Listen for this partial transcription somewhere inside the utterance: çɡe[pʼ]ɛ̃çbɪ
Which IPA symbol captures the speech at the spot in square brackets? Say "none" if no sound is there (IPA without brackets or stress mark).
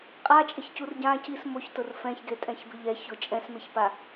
tʼ